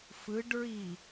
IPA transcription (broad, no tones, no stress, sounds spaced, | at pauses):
f ɯ ɖ ɹ i